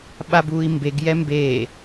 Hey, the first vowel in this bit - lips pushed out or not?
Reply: no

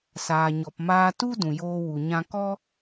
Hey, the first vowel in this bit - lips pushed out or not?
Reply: no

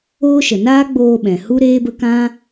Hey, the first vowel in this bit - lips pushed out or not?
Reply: yes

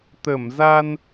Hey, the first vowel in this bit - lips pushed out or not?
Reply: no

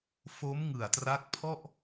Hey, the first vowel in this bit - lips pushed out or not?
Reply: yes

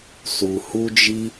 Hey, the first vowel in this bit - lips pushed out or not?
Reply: yes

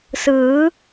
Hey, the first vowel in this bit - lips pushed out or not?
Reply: no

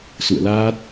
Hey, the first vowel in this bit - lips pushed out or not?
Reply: yes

